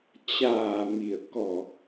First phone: t͡ɕ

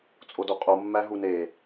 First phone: t͡sʼ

